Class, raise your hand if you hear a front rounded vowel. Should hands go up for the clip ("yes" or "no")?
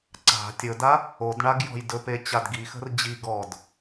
no